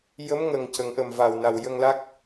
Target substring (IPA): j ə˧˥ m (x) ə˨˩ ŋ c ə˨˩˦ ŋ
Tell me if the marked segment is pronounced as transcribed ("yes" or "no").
no